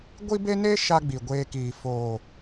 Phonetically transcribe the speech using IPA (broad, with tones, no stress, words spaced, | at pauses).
ɡʷi˦be˦ne˦ ʃa˦ɡ͡bi˨ ɡʷeː˧kiː˨ foː˨